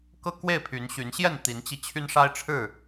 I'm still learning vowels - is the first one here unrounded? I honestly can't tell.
yes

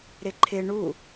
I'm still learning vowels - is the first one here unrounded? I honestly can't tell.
yes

